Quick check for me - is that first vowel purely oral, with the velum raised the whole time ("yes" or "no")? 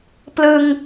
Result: yes